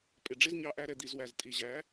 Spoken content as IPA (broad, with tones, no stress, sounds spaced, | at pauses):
pʼ ɪ˨ ɖ͡ʐ ɪ˦ z ɲ ɑ˧ ʔ æ˧ ɾ ɛ˨ d̪ i˨ z w æ˨ z tʼ i˨ ʑ æ˨˦